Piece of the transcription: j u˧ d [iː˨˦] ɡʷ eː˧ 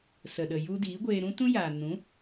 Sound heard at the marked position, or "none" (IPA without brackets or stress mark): iː˨˦